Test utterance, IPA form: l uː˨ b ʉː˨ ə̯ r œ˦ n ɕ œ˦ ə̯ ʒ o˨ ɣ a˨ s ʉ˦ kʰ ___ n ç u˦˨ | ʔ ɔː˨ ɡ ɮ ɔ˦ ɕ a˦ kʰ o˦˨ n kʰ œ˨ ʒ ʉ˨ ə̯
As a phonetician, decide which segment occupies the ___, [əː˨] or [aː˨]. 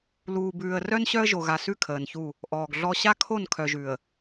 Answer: əː˨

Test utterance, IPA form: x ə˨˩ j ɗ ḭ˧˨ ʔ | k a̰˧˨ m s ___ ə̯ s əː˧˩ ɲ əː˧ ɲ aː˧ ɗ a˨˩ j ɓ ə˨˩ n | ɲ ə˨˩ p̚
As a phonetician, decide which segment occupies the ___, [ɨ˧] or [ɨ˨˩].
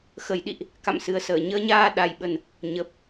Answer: ɨ˨˩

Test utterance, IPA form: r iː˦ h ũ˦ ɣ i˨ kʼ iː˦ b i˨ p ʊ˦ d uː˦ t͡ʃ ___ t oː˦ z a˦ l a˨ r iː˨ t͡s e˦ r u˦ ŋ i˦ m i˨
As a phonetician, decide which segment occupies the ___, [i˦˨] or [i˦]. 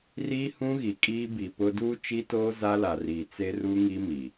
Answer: i˦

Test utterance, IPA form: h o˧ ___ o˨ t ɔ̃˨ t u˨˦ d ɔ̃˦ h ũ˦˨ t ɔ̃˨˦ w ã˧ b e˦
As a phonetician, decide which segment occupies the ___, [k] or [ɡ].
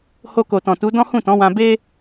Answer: k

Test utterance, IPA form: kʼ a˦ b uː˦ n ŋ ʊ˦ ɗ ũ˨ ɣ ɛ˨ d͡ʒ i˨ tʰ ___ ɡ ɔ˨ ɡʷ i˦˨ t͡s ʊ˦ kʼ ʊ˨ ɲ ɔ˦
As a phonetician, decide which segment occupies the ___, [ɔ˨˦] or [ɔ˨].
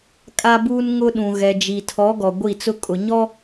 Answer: ɔ˨˦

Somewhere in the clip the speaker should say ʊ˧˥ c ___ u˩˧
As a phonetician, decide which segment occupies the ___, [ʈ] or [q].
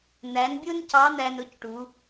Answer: ʈ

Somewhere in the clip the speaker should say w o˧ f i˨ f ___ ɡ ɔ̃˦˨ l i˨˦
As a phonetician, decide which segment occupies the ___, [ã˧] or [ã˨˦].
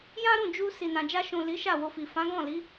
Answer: ã˨˦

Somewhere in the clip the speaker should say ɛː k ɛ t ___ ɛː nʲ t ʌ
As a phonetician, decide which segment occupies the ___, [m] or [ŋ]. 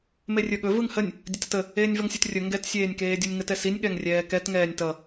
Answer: ŋ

